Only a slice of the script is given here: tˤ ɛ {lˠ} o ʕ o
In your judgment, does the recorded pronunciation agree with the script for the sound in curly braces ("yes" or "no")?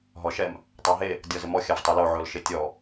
no